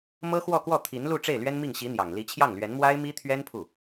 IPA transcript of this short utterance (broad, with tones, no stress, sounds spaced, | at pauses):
m ɤ˥ x w ɔ˥˧ k w ɔ˥˩ t̪ʰ i˧˥ n l u˥˧ ʈ͡ʂ e˥˩ ɪ̯ l ɥ ɛ˥ n m i˥˩ ŋ ɕ i˧˥ n̪ j ɑ˨˩ ŋ l i˧˥ t͡ɕʰ j ɑ˥˩ ŋ l ɥ ɛ˧˥ n m w a˥ ɪ̯ m i˥ t̪ʰ ɥ ɛ˥ n pʰ u˥˩